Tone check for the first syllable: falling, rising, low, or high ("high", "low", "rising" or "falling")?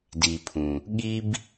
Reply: low